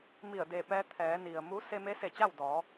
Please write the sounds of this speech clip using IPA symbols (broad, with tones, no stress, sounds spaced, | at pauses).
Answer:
m i˧˩ ə̯ d e˧˩ p ɛː˧ t̪ʰ ɛː˩˧ n i˩ ə̯ m u˧˥ s e˧ m e˧˥ s e˧˩ t͡ɕ a˥˨ w d ɔː˩˧